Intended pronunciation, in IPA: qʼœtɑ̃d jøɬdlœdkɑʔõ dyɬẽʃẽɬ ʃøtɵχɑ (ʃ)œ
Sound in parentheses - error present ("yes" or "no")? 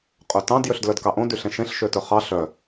yes